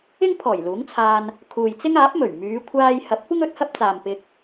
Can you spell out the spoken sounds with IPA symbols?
ɪ˥ŋ pʰɔː˨˩jluː˨˥ŋt͡sʰaː˧n | kʰuː˨jt͡sɪ˥ŋaː˨˥p̚mɵ˨˩ɥ myː˨˧kʷʰaː˧j hɐ˨˥p̚kʷɪ˥ŋ ɵ˨˥t̚hɐ˥p̚t͡saː˨m pɪ˧k̚

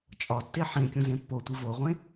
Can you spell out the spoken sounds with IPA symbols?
t͡ʃʼɒtːe ħẽkʲũzẽ pːotʷi voʁʷẽ

